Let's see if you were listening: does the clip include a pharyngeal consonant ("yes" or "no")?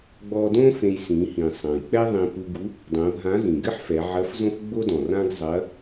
yes